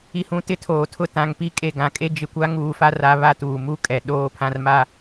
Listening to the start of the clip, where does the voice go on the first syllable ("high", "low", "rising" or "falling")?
low